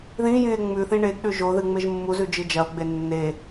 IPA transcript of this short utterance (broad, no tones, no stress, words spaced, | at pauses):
ðĩjĩe̯ ŋ͡mʉθĩ ɳeɡɗʉ ʒoðɨŋ͡meʒ mːuzʉd͡ʒɨ d͡ʒɐo̯ɡ͡be nːe